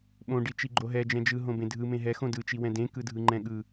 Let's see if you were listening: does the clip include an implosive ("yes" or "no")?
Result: yes